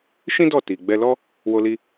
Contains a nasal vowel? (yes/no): yes